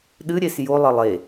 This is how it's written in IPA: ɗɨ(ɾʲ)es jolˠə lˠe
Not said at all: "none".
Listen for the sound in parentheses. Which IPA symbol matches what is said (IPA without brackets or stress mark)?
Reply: ɾʲ